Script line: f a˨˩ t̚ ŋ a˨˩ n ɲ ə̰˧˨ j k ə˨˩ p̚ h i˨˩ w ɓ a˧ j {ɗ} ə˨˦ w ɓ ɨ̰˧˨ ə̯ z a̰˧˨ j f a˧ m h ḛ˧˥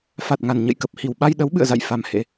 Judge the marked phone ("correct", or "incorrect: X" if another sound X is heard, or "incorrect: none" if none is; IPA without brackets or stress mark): correct